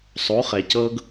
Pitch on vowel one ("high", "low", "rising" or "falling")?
rising